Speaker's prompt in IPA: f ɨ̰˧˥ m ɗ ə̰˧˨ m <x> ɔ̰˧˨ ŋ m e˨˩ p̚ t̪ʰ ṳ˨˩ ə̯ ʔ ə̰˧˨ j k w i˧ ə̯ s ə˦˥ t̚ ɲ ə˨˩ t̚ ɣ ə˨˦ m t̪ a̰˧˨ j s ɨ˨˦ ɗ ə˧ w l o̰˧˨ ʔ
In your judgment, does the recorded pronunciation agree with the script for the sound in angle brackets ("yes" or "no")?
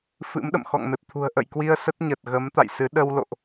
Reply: yes